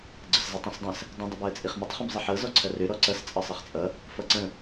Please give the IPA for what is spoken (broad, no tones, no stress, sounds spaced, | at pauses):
ɡ͡ǀ ə s z ə tˤ ĩ s dˤ ə̃ s | dˤ ə̃ dˤ ə b ɔ ə̯ t͡sʼ i χ m ə tˤ χ ə̃ b zˤ ə ħ ɤ z ɔ ǀʰ ɐ r ø ɾ ɔ ǀ ʌ s t͡sʼ ʌ sˤ ʌ χ t͡sʼ ʌ | f ʌ ǀ ə̃